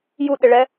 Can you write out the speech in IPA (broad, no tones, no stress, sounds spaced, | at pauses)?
j u ɗ ɪ ɭ ɛ